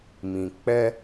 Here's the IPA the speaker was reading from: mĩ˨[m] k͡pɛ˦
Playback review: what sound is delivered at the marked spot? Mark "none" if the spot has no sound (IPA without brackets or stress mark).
none